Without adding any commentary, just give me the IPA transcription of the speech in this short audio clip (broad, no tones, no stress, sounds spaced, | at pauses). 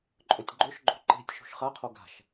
ǃʼ ɵ tʲ ɡ͡ǃ ɵ ʃ ɡ͡ǃ o̤ ǃ e̤ tʲ ʃ ṳ ʃ χ a qʰ o ɡ a̤ ʃ